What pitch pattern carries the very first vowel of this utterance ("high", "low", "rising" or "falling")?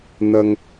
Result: low